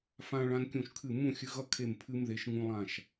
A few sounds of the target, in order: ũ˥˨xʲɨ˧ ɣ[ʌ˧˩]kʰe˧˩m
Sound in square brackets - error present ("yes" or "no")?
yes